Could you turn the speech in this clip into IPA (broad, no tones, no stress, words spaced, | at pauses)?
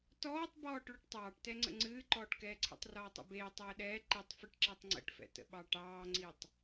tɔːtˤbɔːʈ ɭoʈtˤɑːʈtɛŋ͡ǀə̰ ŋ͡ǀɨːǃɔːʈkɛːǀʰḛtˤ rɔːtˤɛ̰beː tˤɛːɗɛː ǃitˤfɨʈǁɛtˤ ŋ͡ǀə̰ʈfɛ̰tə̰ɓɑ ʈɑːŋ͡ǀitˤ